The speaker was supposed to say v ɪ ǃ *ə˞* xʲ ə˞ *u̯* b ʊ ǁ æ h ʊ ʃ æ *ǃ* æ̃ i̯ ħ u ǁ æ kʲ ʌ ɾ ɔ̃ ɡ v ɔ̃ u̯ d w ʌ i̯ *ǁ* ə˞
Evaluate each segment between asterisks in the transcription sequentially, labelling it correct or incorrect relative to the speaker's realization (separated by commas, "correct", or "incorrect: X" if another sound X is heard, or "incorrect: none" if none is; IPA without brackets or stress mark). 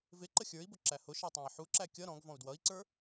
incorrect: ə, incorrect: i̯, incorrect: tˤ, incorrect: ǀ